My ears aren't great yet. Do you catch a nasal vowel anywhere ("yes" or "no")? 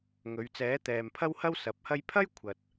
no